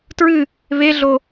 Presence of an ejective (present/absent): absent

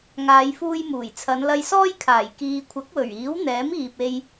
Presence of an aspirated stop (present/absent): present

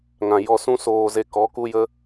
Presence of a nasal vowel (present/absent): present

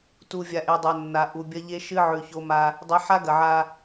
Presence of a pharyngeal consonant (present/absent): present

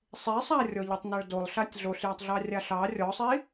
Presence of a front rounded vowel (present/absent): absent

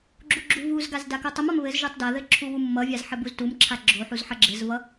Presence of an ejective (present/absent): absent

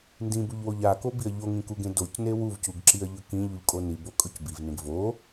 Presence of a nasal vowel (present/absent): present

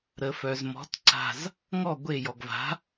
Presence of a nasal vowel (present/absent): absent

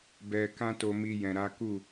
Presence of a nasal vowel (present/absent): present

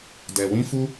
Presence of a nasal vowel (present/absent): present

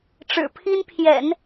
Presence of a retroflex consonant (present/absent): present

